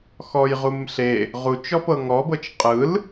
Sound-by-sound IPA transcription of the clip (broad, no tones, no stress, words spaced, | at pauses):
xɔjʁumɬe | ʁu t͡ʃɔpɤŋɔbɤt͡ʃ qʼɯl